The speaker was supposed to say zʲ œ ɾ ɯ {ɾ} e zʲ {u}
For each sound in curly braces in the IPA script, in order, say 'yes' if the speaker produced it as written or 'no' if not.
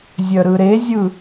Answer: yes, no

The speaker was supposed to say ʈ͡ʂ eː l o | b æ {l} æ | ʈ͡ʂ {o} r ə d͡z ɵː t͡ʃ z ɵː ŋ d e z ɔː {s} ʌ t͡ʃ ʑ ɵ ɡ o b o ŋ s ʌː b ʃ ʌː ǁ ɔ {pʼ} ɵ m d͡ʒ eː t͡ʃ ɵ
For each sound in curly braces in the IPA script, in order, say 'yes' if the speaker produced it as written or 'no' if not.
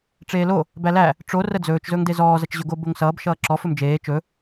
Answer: yes, yes, no, no

